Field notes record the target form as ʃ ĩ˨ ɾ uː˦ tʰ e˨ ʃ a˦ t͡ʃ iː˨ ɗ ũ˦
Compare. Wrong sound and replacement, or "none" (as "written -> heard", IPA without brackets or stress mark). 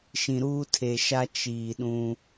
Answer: none